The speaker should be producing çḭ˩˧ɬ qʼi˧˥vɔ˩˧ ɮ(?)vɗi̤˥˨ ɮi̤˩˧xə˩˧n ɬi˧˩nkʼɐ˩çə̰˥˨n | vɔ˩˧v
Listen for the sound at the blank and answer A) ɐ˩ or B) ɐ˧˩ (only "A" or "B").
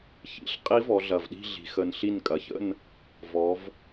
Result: A